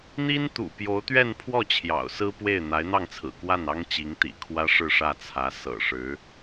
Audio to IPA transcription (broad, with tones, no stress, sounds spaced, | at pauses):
n̪ i˥ n t̪ ṵ˨˩ p j o˧˥ ʊ̯ t̪ ɥ ɛ˥˧ n pʰ w ɔ˥˩ t͡ɕʰ j ɑ̰˨˩ ʊ̯ s ɹ̩˥ p w e˥˩ ɪ̯ n̪ a˧˥ ɪ̯ n̪ ɑ˥˩ ŋ t͡sʰ ɹ̩˨˩ k w a˥˩ n ɑ˥ ŋ t͡ɕ i˧˥ ŋ t̪ ḭ˨˩ kʰ w ä˥ ʂ ɻ̩˥˧ ʂ ä˥˩ t͡sʰ ä˧˥ s ɤ̰˨˩ ʂ ɻ̩˧˥